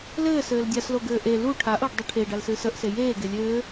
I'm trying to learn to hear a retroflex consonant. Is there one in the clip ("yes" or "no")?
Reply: yes